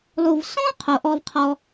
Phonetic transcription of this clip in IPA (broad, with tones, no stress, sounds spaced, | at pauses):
lˠ u˨ v s ɔ̃˥ qʰ o˨ ʔ ɔ˦ v qʰ ɔ˦